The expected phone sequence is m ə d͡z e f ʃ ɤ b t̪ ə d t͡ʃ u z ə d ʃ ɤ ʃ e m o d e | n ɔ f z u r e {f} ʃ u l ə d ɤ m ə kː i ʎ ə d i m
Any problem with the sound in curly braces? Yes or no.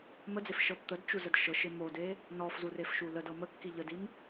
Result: no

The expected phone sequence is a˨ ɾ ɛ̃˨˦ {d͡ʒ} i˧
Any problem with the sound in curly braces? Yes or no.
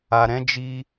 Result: no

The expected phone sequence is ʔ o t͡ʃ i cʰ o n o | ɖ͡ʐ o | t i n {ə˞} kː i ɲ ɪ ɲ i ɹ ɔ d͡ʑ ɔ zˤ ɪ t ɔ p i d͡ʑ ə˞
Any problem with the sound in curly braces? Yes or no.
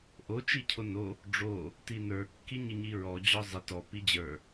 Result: no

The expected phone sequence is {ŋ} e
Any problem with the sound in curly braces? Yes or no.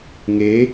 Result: no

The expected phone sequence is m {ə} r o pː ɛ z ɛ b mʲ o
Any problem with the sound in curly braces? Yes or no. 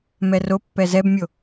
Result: yes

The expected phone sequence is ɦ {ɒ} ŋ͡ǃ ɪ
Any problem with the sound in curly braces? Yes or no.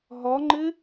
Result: no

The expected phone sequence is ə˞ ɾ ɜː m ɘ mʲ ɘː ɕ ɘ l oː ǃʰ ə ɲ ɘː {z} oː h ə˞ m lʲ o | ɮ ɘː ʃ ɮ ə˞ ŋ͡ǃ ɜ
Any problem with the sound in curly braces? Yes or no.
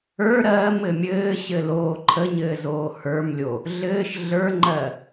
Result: no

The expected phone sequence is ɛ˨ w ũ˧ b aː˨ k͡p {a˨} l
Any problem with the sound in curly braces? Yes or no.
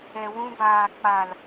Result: no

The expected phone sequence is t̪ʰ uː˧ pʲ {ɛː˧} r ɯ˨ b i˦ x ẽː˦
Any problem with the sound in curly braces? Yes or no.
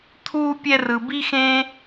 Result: yes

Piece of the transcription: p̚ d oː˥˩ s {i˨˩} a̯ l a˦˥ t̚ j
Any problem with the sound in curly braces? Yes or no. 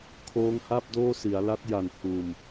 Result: yes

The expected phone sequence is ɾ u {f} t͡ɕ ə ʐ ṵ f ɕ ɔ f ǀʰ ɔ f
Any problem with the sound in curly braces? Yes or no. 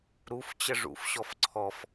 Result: no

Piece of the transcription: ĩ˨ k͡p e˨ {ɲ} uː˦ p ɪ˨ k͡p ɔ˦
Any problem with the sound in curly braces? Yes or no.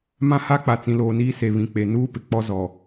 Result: yes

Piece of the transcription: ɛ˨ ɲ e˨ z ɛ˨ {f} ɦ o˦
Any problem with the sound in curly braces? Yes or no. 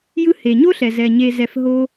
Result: no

